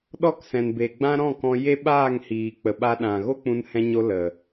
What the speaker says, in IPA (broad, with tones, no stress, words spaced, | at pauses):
ɗɔ˦˨ksɛ̃˨nbe˨ɡ͡bã˦ ɾɔ̃˦˨kɔ̃˧ je˦ ɓaː˦˨ŋhiː˨k͡pə˨ɓa˧ ɗã˨ ɣo˦k͡pũ˧nhɛ̃˧ɲo˧ lə˨